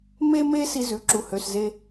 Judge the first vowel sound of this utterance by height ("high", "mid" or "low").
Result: mid